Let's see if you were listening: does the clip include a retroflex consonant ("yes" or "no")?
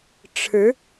yes